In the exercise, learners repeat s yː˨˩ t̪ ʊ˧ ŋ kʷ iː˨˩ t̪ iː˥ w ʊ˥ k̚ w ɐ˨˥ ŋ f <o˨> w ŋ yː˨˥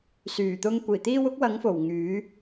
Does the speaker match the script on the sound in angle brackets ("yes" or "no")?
no